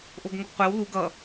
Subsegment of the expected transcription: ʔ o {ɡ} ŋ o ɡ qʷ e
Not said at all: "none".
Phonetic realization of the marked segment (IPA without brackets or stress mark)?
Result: ɡ